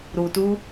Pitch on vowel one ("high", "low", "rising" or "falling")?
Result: low